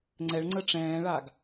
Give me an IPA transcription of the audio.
ŋ͡ǀ ɛ ɭ ŋ͡ǀ ə ʈ͡ʂ ɛ̃ː ɭ a ɡ

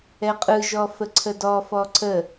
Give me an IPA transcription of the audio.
ɛ qʼ ɯ ʒ ɔ f ə ǀʰ ə d ɔ f ɔ ǀʰ ə

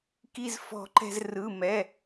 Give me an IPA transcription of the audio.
k i˥ z f ɔ̤˥˧ ǃ ɛ̤˥ z r ɯ˧˥˧ m ɛ˧˥˧

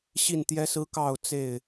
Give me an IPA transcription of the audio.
ɕ i˥˨ n t̪ j ɛ˦ s ɹ̩˦ k ɑ˥˨ ʊ̯ t͡s e˥˨ ɪ̯

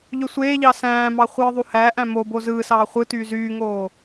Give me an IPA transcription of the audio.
ʎ ø sʷ eː ʎ ɑ s æ̃ː m ɑ χʷ ɯː ðˤ u h æ ʔ æ̃ m o b o z ɯː s ɑː χʷ ɯ t yː z yː ŋ oː

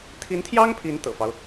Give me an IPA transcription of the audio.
t̪ʰ i˧˥ n t̪ʰ j ɑ˥ ŋ pʰ i˧˥ n t̪ ɤ̰˨˩ f ɑ˦ ʊ̯

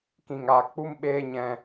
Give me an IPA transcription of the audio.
k ĩ˨ ŋ aː˨ k k͡p u˦ m ɓ eː˦ ɲ ɛ̃˧

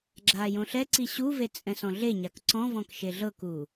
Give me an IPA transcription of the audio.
ɡ͡ǁ aː j õ ɬ ɛ ǀ i ɕ u v e t͡sʼ ɛ̃ s ɔ̃ ɮ e ɲ a k ǀ ɔ̃ v ɔ̃ k ʃ e ɮ ɤ k uː

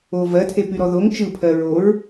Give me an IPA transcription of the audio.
o v ɜ tʰ e p y ɾ ɔ ð o ŋ t͡ʃ ɯ pʰ ɜ ɹ o ɹ

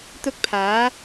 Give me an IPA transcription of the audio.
t̪ ʊ˧ k̚ pʰ aː˨˧

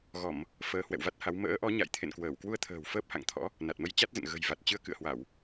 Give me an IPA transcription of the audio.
ɣ ɔ˧˩˨ m | f əː˨˦ h w ɛ̰˧˨ w v a˦˥ t̚ h a˨˦ w m ə̰ː˧˥ ʔ ɔ˨˦ ɲ a̰˧˨ j t̪ʰ ḛ˧˨ n k w əː˧˩ w k w u˧ ə̯ t̪ʰ ə̤ː˨˩ w f əː˦˥ p̚ h a̰˧˨ ŋ t̪ʰ ɔ̰˧˥ | n a˨˩ t̚ m ə˧ j t͡ɕ a˦˥ t̚ z ə̰˧˨ n ɣ ə̤˨˩ j v a˨˩ t̚ t͡ɕ ɨ˧ ə̯ k ɨ̰˧˨ ə̯ h w a˧˩˨ w

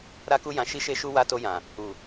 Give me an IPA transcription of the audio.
ɾ a˦ k u˦ j ã˧ ʃ i˧ ʃ e˧ ʃ u˧ w a˧ t o˧ j ã˨ | u˨

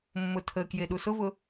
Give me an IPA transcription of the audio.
mː ʊ tʰ ə k j e ɗ u s ʊ v ʊ

